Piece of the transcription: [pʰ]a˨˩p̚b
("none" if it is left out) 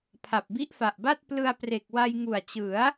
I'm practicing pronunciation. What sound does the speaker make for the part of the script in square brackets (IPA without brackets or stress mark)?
pʰ